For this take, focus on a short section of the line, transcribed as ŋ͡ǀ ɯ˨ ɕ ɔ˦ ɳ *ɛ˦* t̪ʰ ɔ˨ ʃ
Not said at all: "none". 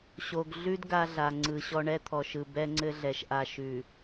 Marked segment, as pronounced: ɛ˦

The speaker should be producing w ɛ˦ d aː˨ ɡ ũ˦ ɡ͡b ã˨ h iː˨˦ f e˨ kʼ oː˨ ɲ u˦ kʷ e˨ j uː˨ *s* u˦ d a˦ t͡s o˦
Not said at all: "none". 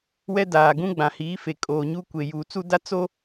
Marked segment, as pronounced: t͡s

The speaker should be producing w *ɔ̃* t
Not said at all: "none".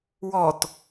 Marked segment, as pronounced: ɔ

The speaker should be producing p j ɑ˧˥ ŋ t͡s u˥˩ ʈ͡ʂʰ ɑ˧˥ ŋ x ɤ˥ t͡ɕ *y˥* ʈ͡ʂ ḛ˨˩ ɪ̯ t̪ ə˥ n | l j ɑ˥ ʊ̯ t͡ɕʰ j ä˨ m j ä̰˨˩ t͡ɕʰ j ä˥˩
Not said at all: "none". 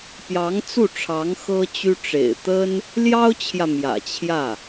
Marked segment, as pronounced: y˥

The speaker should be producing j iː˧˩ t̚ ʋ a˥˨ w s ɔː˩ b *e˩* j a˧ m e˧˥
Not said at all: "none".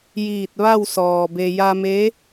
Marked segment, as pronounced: e˩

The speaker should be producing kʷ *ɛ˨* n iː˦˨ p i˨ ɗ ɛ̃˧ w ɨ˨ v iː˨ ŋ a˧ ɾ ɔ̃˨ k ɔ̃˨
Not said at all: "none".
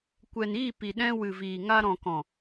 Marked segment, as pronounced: ɛ˨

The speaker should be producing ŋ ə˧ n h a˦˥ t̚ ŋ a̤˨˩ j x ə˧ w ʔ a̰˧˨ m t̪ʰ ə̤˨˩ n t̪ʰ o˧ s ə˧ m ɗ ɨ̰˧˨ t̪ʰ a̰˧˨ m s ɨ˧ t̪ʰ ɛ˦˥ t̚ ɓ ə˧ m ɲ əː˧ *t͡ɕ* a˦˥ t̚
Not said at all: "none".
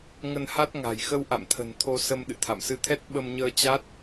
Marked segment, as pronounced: t͡ɕ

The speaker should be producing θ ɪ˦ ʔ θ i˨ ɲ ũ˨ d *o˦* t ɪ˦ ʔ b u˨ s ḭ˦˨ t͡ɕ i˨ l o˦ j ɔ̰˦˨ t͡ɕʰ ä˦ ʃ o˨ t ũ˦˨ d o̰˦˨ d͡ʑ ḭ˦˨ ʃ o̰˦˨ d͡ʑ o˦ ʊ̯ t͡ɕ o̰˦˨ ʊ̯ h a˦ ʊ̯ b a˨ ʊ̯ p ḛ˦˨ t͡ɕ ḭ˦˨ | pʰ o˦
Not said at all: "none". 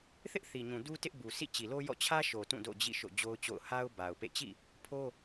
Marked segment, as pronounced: u˦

